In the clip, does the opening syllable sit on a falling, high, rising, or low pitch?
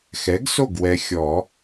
rising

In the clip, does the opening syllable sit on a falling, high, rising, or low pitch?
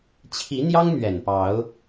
rising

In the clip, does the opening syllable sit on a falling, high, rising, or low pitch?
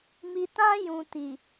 low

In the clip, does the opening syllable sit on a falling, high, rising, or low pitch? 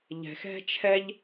low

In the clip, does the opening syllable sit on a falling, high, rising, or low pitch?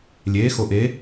rising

